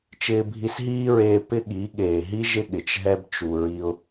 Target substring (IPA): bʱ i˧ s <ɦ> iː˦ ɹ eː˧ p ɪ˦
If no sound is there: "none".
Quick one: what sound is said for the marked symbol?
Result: ɦ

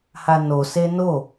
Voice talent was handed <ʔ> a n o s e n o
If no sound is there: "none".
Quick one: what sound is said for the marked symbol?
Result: h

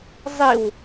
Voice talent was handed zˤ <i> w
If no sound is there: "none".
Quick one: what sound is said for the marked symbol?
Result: i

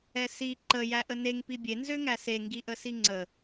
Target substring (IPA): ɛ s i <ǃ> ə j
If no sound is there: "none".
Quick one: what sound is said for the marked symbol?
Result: ǃ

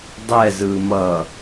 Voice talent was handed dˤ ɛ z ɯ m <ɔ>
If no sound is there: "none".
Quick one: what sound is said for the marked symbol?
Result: ʌ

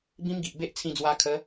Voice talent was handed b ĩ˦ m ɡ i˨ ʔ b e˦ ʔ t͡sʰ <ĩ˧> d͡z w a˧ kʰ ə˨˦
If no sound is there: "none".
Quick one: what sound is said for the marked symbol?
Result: ĩ˧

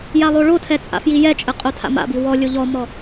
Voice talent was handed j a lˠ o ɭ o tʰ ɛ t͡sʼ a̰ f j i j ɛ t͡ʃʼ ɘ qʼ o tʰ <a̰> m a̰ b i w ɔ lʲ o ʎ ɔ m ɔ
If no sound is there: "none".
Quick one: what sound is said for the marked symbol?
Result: a̰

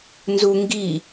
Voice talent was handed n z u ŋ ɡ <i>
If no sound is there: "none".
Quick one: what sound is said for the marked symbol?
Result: i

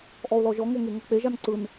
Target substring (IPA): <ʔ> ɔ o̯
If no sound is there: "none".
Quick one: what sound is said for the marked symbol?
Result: ʔ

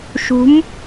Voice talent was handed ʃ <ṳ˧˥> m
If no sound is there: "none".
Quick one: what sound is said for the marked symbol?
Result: ṳ˧˥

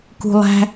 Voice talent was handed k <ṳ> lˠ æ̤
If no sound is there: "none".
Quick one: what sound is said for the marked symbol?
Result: ṳ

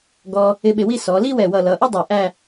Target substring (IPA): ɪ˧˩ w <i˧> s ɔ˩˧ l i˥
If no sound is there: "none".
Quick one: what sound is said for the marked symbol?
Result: i˥˧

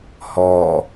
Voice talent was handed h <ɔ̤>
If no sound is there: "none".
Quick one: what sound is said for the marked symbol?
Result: ɔ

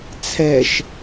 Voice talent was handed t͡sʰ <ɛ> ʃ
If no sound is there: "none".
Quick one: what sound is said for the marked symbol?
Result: ɛ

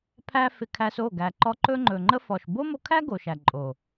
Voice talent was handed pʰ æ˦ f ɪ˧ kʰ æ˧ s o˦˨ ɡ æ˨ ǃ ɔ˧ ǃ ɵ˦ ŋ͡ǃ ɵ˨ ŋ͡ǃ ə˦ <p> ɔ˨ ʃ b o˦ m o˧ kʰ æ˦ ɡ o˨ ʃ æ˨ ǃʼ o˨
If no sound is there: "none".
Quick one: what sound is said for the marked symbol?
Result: f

